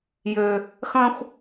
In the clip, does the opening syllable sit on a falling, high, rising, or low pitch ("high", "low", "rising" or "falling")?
low